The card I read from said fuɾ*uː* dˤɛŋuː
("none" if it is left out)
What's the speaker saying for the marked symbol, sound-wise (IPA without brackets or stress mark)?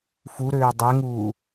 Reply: øː